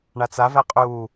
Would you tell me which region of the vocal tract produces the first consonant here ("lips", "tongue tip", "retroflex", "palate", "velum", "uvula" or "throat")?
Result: retroflex